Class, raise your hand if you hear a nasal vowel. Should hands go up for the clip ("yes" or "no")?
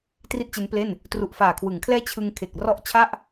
no